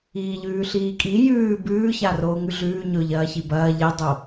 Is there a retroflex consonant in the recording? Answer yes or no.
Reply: no